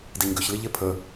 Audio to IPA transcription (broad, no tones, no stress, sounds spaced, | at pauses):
d i ɲ ɡ ʏ ç l i ʎ e pʰ ə